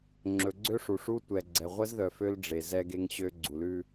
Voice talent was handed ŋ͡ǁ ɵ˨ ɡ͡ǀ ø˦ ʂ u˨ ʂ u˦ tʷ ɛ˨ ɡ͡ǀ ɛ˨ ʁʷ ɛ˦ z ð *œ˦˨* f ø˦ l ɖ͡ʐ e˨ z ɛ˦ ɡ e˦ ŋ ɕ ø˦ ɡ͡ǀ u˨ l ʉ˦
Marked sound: incorrect: œ˨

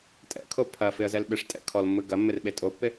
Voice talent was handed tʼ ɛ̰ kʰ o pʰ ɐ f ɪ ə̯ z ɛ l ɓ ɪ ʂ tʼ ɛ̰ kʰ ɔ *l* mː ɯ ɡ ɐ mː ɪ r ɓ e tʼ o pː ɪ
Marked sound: correct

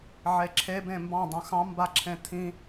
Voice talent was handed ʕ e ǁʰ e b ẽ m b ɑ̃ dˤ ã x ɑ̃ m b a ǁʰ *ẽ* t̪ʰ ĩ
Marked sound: correct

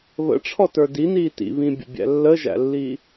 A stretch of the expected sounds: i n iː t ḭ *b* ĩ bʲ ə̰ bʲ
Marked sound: incorrect: β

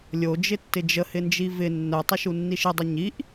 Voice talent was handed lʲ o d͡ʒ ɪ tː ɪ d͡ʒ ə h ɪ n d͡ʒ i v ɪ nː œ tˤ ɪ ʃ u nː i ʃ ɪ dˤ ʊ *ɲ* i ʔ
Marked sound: correct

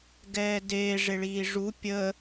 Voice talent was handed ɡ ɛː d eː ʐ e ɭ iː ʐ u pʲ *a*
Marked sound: incorrect: ə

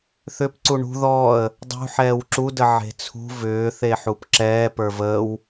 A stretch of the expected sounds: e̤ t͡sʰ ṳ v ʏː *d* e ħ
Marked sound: incorrect: θ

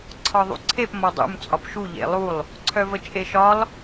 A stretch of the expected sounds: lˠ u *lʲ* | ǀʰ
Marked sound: incorrect: lˠ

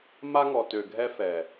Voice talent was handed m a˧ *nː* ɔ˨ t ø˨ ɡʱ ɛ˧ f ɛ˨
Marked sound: incorrect: ŋ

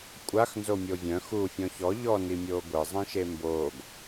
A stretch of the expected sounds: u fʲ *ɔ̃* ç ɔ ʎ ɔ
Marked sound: correct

